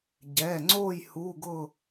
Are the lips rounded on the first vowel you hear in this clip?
no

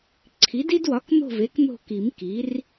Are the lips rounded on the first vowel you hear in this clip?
no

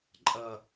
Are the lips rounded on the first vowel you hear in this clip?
no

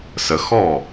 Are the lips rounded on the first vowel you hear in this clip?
no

